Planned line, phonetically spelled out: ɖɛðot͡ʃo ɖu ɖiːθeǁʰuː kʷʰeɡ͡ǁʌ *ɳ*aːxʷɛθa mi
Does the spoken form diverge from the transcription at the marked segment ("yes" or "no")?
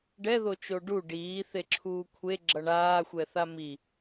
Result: no